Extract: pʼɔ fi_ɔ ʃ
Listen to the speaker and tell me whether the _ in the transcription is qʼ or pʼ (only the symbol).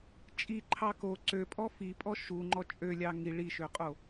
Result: pʼ